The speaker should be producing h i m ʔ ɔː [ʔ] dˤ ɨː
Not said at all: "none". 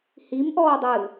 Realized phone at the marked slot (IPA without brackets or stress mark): none